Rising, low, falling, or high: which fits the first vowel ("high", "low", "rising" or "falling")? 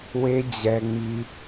high